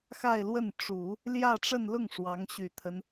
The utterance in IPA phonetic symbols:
x a˥˧ ɪ̯ l w ə˥˩ n ʈ͡ʂ u˨˩˦ | l j ä˥˧ ʈ͡ʂ ə˥˧ n l ʊ˥˩ ŋ ʂ w ɑ˧˥ ŋ ɕ y˨˩ t̪ʰ ə˦ n

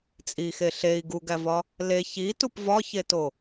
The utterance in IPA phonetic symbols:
t͡sʼ i x e ɬ e i̯ ɡ u ɡ æ v ɒ | l e ç i t u p v ɒ ç e t o

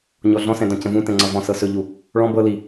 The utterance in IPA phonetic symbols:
ɲ ɔ ɮ ɔ̃ s ɛ̃ d ɔ̃ c ə̃ v ũ t ɛ̃ ŋ͡ǀ ʌ v ɔ̃ s ɤ s ɵ ʎ u | ɭ ɔ̃ b ɤ l i

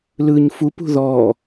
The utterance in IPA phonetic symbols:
l ɯ ɲ f u p ṳ ð ɔ

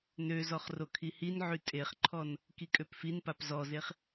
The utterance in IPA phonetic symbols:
n ø z ɔ χ r o kʰ i h i n ʕ y tʼ e χ ǃʰ ɔ n | k i kʼ ø p f i n p a p z ɔ z e χ

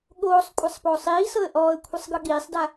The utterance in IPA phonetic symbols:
ɠ oː sˤ kʷʼ a sˤ p oː sˤ iː s ɤ ə̯ ʔ ɔː ə̯ kʷʰ e sˤ ɡ ɯ ɠ iː sˤ d a

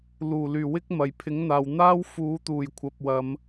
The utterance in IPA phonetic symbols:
l uː˨˩ l yː˨˩ w ɪ˥ k̚ m ɐ˨˩ j pʰ ɪ˨˥ ŋ n̪ aː˨ w n̪ aː˥ w f uː˨˧ t̪ uː˨˩ j kʷʰ ɐ˨ p̚ w ɐ˨˧ m

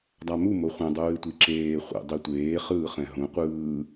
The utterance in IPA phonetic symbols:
dˤ a m u m o χʷ ɛ̃ dˤ uː ɪ̯ tʷ i ǁ eː χʷ ḛ dˤ i tʷ eː χ ɯː χ ɛ̃ ɦ ũ qʷ ɯː

